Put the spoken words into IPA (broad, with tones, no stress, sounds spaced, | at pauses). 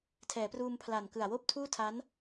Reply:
tʰ ɛː˩˦ p r uː˧ m pʰ l a˨˩ n k ɯ˨˩ a̯ w oː˥˩ p̚ tʰ uː˥˩ tʰ a˦˥ n